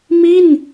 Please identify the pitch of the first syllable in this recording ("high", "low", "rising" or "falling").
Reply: falling